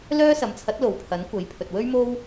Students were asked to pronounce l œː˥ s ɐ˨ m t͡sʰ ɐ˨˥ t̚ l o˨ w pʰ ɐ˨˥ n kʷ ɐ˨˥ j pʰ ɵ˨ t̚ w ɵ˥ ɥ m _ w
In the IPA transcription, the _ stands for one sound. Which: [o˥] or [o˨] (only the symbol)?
o˥